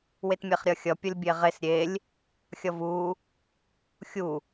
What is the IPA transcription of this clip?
w e t mʲ e χ ɾʲ ʌ xʲ ʌ pʲ ʌ lʲ bʲ e ʁ e s ɾʲ e lʲ | xʲ ʌ v u | xʲ u

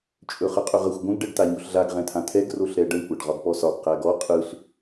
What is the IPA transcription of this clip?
t͡ʃʼ ɵ χ ə qʼ ɵ ʁ ə xʷ ɡʷ ə̃ ɡ ɖ ɛ ɖ t̪ a ɲ o ɬ ɮ a ɡ ʁ ɛ̃ t̪ʰ ã t̪ʰ ɛ ɡ r o ɬ ɾ ɛ ɖ ə ɳ kʷ æ ɖ ʁ ɒ ɡ p ɔ s ɒ ɡ q æ ɡ ɔ qʼ ɯ ɬ

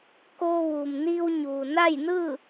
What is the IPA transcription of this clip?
k oː˧ ʋ uː˩ m n iː˧ w ɲ uː˩ n a˥˨ j n ɯː˥˨

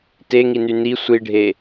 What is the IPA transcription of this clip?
t e ŋ i n y n i sʷ i ɖʱ e

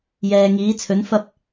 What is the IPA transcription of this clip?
j ɛː˨ ŋ iː˨˧ t͡sʰ ɵ˨˧ n f ɐ˥ p̚

